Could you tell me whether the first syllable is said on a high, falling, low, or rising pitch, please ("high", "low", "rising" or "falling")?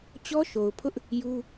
high